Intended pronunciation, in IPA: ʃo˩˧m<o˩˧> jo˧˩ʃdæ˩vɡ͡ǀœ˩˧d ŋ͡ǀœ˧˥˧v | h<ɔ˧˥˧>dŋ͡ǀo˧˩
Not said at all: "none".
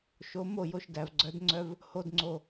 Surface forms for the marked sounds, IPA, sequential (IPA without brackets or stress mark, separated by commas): o˧˩, o˧˥˧